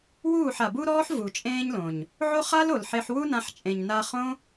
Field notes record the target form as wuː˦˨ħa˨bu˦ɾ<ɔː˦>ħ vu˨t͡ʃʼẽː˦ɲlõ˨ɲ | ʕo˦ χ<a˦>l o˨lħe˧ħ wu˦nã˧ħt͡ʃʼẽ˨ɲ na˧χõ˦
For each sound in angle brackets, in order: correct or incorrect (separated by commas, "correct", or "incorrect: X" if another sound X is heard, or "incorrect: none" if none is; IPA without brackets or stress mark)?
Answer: correct, correct